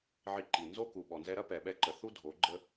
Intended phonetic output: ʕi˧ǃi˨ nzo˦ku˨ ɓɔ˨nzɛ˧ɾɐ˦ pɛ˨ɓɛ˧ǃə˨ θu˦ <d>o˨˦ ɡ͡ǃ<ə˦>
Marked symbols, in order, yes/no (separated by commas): no, yes